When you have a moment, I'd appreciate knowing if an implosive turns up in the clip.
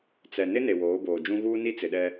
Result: yes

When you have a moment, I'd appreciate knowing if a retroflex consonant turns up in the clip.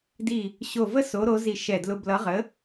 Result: no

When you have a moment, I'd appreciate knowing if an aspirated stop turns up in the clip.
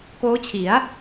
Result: yes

